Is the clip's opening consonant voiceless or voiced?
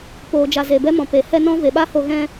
voiceless